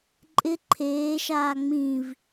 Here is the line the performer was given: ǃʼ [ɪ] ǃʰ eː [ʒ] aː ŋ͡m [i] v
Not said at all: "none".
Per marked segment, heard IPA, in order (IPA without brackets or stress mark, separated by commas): ɪ, ʃ, ĩ